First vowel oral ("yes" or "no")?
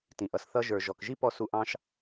no